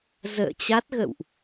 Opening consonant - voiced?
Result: yes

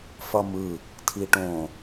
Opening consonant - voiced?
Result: no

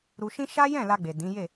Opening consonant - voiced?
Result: yes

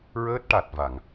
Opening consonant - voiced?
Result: yes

